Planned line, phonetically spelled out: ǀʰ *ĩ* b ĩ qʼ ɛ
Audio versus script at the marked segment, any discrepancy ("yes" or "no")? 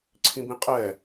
no